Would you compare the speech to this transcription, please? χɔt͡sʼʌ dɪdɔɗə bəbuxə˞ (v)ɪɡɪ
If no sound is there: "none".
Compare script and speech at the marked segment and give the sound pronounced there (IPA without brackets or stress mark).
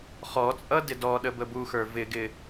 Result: v